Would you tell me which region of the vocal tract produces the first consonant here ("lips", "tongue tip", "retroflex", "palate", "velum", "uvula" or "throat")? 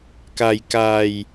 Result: velum